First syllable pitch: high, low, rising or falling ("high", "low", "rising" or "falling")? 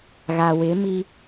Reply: low